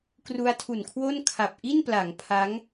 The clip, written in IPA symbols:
k r u˦˥ a̯ tʰ u˨˩ n kʰ w o˥˩ n kʰ a˨˩ p̚ ʔ i˥˩ n p l a˩˦ ŋ pʰ a˦˥ ŋ

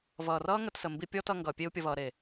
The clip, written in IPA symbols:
v ʌː˨ r ʌː˦ ŋ ə˧ t s ə˨ m b i˧ pʲ ɔ˦ t ʌ˧ ŋ ɡ ʌː˨ pʲ e˧ u̯ pʲ ʌ˨ v ʌː˨ ɾ e˨

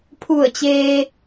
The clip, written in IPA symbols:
pʰ u˧˩ ə̯ t͡ɕ eː˧

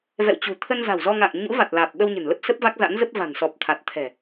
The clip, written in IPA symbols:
v ɛ̰˧˨ w t͡ɕ ṳ˨˩ t̪ʰ ə˧ n z a̤˨˩ w z ɔ˧ ŋ a̰ː˧˨ ŋ ɲ ṵ˧˥ v a˨˩ t̚ l aː˨˩ p̚ ɓ ə˧ w ɲ ə̤˨˩ n l ə˦˥ p̚ s ə˦˥ p̚ v a˦˥ k̚ z a̰˧˥ n z ə˦˥ p̚ v a̤˨˩ n s ɔ˨˩ p̚ t̪ʰ a˨˩ t̚ t̪ʰ ɛ̤˨˩

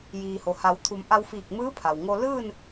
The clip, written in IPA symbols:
j iː˩ h o˩ h a˩˧ w t̪ʰ u˩˧ m ʔ a˧ w f iː˧˩ k̚ m ɯː˧˥ pʰ a˩ w ŋ o˧ l ɯː˥˨ n

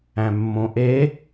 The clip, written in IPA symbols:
æ̃ mː õ ʔ e

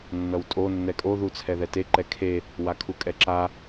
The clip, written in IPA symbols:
nː ʌ w tʼ o nː ɛ kʼ o ð u t͡sʰ ɛ ð ɛ t e ǃ ɛ kʰ e | w a kʰ u kʼ ɛ ǁ a

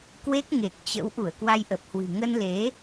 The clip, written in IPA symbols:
k w e˦˥ k̚ ŋ e˨˩ k̚ t͡ɕ ə̰˧˥ w ʔ u˧˩ ə̯ k w a˧ j ʔ ə˨˩ p̚ h w ɨ̤˨˩ ŋ ə˧ n l e˨˦

